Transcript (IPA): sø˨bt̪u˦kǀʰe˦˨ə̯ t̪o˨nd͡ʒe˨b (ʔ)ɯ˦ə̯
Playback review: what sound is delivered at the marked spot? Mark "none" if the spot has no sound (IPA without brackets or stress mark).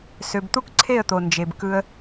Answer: k